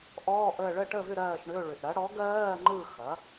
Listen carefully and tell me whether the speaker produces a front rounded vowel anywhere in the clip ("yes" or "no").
yes